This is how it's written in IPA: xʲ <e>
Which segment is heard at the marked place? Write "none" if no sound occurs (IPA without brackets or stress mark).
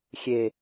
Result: e